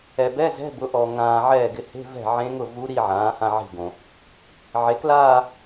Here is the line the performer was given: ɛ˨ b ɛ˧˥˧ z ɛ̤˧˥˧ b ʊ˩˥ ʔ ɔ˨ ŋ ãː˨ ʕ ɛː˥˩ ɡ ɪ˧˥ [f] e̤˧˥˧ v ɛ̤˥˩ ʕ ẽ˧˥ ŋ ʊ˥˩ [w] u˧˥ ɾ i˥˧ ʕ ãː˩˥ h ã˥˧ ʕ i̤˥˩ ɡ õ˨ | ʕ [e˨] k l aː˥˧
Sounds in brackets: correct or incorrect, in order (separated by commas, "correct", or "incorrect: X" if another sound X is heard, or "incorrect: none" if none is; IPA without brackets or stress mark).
incorrect: h, incorrect: v, incorrect: e˩˥